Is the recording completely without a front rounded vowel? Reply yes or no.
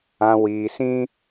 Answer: yes